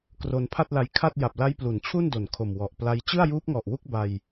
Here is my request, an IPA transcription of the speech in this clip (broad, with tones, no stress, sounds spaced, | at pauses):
k r o˧ n pʰ a˥˩ t̚ l a˧ j kʰ a˥˩ t̚ j a˨˩ p̚ l a˦˥ j p l u˩˦ n t͡ɕʰ u˥˩ n d o˨˩ n kʰ o˨˩ m w ɔ˨˩ ʔ p l a˦˥ j t͡ɕ ɯ˥˩ a̯ j uː˦˥ p̚ ŋ ɔ˨˩ ʔ w u˥˩ k̚ b a˧ j